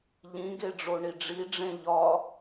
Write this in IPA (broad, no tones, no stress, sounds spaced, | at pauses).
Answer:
ʎ ĩ ɡ e ɖ͡ʐ o ɳ i ɖ͡ʐ i ɖ͡ʐ ẽ ʎ ɒ